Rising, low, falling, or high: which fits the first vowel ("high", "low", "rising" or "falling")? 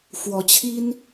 rising